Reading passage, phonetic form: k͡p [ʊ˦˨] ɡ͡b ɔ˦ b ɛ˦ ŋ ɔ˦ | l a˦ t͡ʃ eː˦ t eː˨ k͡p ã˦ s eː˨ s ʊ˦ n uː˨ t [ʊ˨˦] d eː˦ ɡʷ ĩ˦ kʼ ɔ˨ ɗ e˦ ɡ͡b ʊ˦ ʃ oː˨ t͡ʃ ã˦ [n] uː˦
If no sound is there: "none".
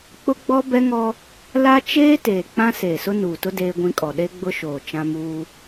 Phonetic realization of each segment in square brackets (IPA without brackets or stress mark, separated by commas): ʊ˦, ʊ˦, m